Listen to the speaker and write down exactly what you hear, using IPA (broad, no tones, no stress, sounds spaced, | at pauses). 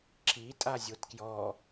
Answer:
ǁ i tʼ a zʲ o t k j ɔ